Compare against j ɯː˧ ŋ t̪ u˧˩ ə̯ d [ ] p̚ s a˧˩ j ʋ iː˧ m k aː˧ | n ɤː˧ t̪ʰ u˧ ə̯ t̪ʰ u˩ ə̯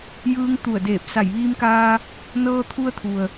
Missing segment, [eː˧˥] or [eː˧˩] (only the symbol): eː˧˩